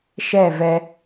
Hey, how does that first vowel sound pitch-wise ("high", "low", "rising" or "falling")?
falling